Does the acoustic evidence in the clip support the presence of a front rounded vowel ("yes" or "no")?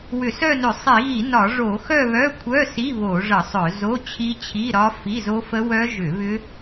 yes